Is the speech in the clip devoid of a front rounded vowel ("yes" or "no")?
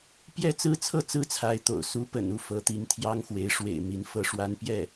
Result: yes